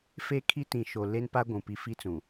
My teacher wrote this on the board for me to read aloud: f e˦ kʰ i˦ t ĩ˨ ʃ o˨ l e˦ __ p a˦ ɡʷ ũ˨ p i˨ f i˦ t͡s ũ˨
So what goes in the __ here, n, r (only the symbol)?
n